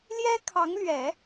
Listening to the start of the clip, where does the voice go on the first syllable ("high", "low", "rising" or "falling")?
high